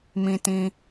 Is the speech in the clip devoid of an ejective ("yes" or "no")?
yes